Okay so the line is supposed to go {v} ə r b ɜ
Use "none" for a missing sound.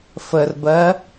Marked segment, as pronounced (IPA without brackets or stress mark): f